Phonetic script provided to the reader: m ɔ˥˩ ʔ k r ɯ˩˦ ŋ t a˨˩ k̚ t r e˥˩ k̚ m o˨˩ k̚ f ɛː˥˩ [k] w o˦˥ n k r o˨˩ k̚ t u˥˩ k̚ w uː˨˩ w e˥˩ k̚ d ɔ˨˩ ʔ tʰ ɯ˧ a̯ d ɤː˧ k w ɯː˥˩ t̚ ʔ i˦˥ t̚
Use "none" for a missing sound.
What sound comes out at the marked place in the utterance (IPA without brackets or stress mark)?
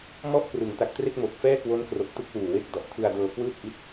k